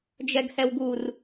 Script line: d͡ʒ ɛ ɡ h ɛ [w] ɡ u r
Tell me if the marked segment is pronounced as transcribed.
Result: yes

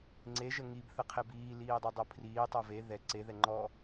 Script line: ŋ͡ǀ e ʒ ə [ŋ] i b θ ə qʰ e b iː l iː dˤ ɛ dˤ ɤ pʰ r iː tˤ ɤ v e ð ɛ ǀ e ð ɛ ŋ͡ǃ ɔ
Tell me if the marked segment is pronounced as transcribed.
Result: yes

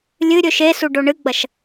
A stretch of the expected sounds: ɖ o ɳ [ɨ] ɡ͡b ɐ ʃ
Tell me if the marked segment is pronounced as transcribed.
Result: yes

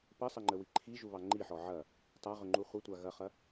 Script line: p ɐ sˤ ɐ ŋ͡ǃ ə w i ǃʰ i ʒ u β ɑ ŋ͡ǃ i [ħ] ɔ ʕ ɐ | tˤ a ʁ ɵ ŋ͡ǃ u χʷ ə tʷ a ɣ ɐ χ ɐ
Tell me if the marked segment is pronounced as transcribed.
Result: yes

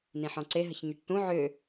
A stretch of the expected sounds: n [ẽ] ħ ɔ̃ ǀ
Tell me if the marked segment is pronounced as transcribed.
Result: no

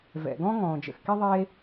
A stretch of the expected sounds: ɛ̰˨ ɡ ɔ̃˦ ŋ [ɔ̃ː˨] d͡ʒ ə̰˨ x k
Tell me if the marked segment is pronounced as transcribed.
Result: yes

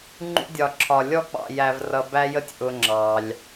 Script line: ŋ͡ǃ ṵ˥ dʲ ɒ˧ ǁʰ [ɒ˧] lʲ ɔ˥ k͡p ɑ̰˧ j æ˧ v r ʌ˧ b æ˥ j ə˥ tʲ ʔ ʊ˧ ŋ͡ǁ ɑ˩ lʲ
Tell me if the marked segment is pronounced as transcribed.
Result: yes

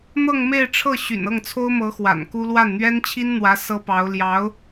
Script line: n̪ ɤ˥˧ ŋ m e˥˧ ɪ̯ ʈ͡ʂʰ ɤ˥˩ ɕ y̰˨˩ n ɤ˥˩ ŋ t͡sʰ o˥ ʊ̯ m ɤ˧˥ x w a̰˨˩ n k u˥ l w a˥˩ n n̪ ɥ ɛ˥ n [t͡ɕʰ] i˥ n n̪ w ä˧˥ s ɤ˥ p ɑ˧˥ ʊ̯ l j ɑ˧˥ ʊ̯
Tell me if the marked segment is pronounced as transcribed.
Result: yes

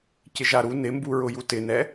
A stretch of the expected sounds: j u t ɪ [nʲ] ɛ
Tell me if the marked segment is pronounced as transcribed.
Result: no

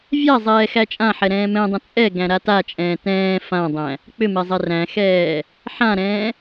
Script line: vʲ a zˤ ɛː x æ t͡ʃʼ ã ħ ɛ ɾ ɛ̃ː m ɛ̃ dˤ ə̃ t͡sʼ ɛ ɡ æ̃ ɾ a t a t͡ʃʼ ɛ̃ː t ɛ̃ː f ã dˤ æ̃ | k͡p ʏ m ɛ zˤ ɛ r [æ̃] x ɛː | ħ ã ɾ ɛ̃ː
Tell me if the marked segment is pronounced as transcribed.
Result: yes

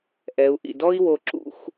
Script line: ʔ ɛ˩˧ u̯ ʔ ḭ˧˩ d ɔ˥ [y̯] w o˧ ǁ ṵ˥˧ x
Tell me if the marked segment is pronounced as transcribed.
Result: no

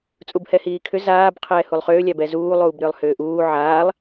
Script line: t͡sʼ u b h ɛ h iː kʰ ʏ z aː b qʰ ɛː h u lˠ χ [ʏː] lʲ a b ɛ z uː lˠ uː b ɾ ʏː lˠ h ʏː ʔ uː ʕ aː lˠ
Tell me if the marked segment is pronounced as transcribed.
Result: yes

